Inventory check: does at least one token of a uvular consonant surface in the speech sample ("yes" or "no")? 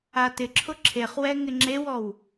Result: yes